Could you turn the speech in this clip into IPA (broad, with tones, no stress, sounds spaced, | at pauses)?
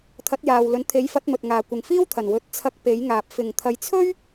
t̪ʰ ɐ˨˥ t̚ j aː˨ w l ɵ˨˥ n t̪ʰ e˨˥ j f ɐ˨˥ t̚ m ɵ˨ t̚ ŋ aː˨ kʷ ɪ˨ ŋ f iː˥ w t̪ʰ ɐ˨˩ n w ɵ˨ t̚ t͡sʰ ɐ˧ k̚ p e˨˥ j ŋ aː˨ p̚ f ɪ˨˩ ŋ t̪ʰ ɐ˨ j t͡sʰ ɵ˥ ɥ